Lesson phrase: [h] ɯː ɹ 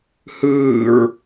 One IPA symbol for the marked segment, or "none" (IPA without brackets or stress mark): h